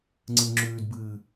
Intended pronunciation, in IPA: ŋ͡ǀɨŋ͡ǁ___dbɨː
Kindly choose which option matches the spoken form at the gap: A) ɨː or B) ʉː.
B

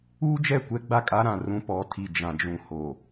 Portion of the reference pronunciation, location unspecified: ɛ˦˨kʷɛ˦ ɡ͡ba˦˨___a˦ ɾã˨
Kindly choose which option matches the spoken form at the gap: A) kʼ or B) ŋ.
A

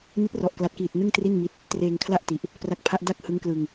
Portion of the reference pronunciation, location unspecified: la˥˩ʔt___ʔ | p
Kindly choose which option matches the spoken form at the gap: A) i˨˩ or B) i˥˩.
A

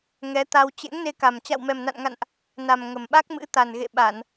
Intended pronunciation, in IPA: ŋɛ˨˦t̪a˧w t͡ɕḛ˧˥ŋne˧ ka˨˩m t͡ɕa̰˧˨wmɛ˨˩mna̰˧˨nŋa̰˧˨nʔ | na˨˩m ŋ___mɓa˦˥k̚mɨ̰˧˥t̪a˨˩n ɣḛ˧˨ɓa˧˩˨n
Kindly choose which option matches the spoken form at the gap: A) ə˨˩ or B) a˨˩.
A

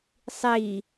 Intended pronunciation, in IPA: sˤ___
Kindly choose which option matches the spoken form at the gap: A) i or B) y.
A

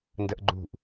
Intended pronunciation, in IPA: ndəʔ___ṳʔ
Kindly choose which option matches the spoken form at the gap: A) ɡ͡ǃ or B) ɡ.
A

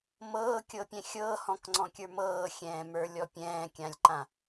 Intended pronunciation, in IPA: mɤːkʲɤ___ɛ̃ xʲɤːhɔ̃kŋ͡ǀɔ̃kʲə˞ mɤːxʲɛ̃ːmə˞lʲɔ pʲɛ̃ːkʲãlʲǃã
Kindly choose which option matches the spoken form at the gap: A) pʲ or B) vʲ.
A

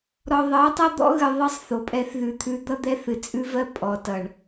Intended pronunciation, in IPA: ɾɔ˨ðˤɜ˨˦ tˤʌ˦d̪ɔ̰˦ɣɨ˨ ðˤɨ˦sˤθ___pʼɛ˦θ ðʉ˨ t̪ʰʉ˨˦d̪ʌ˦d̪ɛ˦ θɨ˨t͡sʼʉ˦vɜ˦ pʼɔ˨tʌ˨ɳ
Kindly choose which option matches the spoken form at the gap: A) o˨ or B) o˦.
A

